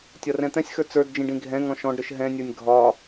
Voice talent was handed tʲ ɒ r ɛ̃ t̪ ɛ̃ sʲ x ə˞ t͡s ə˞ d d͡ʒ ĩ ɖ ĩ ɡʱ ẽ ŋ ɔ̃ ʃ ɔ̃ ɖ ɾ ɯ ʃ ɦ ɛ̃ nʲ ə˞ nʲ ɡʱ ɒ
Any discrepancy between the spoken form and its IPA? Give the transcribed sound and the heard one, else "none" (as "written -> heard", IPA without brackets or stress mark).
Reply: ẽ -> ɛ̃